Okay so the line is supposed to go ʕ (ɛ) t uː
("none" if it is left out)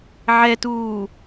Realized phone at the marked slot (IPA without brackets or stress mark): ɛ